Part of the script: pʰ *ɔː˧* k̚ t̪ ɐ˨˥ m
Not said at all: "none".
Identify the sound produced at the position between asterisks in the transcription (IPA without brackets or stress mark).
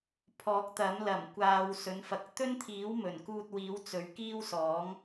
ɔː˨˥